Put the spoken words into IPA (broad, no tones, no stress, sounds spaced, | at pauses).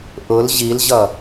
ʔ ʊ l ʑ i l ʑ ʌ